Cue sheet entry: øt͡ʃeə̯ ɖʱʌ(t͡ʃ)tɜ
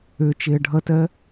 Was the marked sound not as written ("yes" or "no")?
yes